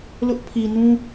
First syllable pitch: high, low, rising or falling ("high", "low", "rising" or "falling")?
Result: high